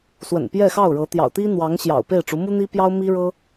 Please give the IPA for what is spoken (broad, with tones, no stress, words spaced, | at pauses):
swə̰˨˩npjɛ˥˧xɑ˥˩ʊ̯ɻɤ˧˥ t̪jɑ̰˨˩ʊ̯t̪i˥n̪wɑ˧˥ŋ ɕjɑ̰˨˩ʊ̯pe˥˩ɪ̯ʈ͡ʂu˧˥ mu˥n̪i˥pjɑ˥ʊ̯mi˥ ɻɤ˥